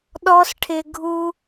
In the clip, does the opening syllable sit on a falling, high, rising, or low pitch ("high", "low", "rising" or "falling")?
high